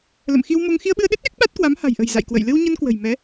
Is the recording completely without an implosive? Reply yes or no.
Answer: no